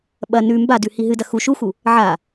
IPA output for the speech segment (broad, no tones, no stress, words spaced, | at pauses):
ɓɐ nʉ mbadʉ hiɦɨdɐ xu ʃuxu | ʕa